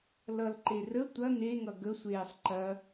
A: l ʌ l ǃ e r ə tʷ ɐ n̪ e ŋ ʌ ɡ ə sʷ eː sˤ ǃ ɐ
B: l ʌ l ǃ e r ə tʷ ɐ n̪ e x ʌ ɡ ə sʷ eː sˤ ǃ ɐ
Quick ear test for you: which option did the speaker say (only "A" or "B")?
A